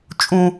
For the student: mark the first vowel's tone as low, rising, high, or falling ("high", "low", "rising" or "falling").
low